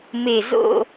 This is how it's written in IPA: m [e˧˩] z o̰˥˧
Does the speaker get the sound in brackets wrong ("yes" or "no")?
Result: no